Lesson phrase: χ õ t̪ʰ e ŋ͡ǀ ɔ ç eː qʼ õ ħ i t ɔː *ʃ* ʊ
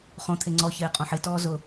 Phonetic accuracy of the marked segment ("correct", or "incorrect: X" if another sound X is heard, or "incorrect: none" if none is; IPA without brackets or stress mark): incorrect: z